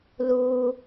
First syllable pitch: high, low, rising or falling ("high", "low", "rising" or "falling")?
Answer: low